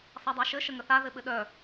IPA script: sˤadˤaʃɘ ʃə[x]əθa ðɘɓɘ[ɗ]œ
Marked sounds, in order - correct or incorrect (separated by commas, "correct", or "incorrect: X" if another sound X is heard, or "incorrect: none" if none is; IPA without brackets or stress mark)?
incorrect: ŋ, correct